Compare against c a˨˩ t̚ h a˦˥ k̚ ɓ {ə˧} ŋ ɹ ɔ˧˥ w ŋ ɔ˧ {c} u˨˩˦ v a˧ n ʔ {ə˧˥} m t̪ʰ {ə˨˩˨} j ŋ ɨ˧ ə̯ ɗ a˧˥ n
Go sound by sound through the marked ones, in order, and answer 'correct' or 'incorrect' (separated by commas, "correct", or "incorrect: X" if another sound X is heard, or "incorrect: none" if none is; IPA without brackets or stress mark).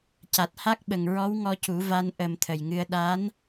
incorrect: ə˨˩, correct, incorrect: ə˨˩, incorrect: ə˨˩